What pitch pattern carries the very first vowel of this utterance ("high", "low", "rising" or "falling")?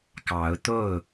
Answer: rising